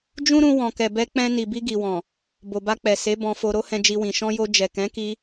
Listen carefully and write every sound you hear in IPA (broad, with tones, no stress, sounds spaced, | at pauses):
d͡ʒ ũ˦ ɾ ũ˧ w ɔ̃˨ k ɛ˨ b ɛ˧ k͡p ɛ̃˧ n i˨ b i˧ ɡ i˨ w ɔ̃˨ | b o˨ b a˧ k͡p ɛ˨ s e˨˦ b ɔ̃˧ f o˧ ɾ o˦ h ɛ̃˧ d͡ʒ i˧ w ĩ˨ ʃ ɔ̃˧ j o˧ d͡ʒ ɛ˨ k ɛ̃˨˦ k i˧